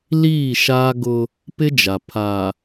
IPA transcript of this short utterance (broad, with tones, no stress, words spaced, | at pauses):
liː˦˨ʃaː˦ɡʊ˦ | pɪ˦d͡ʒa˨ pʰa˨